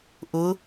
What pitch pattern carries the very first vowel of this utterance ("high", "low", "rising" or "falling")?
rising